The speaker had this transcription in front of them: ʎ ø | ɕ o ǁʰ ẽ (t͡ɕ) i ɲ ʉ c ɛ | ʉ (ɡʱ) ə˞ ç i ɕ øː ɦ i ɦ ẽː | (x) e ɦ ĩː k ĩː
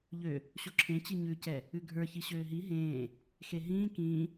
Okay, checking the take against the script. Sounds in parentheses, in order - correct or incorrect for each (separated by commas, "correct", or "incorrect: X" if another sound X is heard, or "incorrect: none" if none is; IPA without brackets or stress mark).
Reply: correct, correct, correct